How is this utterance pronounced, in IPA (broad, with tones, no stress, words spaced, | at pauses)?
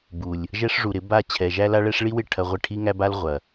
bu˨lʲ | ʒɛ˦ʂ ʐu˨ɾɪ˨˦ ba˦˨ t͡ɕʰɛ˨ʒæ˦la˦ɭɛ˦ʂ ɭi˦wɪ˦˨ ʈʰɐ˦ʁʷɪ˦ ʈʰi˦ŋæ˦ba˦l ʁʷɐ˨